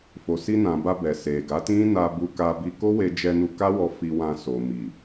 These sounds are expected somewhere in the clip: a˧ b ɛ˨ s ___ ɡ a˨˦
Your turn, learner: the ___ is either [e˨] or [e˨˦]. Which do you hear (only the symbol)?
e˨